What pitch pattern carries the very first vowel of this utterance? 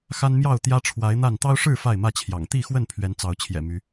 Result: high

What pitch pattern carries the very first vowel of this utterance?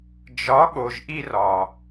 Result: rising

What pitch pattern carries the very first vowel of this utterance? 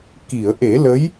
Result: low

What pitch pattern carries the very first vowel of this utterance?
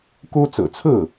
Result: high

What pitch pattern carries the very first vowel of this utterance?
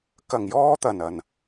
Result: low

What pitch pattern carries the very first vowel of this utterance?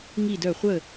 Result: falling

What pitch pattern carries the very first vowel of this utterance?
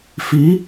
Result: rising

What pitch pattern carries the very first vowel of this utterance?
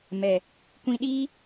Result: low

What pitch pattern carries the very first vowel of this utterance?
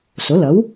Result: rising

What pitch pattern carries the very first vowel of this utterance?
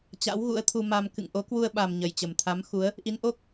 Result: rising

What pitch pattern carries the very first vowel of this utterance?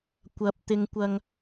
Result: low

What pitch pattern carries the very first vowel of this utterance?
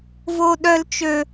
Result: high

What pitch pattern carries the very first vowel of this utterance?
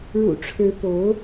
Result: low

